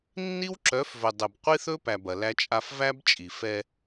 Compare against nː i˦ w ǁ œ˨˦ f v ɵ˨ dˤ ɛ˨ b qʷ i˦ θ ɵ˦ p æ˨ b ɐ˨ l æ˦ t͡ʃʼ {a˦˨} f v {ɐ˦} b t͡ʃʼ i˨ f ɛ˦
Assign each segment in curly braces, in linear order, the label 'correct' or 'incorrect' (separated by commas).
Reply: incorrect, incorrect